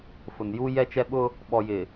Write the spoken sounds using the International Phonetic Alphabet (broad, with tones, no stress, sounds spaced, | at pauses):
f ʊ˨ n j u˦ j ɛ˦ t͡ʃ ɛ˦ ɓ ʊ˦ | ɓ ɔ˨ j ɪ˨